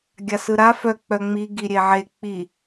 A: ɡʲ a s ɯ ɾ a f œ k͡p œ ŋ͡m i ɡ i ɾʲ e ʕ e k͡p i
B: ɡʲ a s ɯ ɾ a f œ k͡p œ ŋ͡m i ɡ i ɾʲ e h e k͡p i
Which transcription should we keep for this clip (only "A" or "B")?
A